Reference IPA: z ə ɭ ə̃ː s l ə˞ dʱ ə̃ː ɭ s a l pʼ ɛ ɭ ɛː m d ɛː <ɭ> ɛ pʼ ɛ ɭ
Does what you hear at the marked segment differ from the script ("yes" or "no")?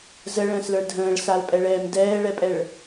no